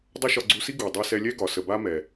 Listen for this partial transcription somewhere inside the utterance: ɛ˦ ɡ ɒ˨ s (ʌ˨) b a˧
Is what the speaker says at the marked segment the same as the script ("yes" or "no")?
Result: no